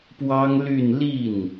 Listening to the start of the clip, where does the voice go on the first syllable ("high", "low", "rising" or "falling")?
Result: high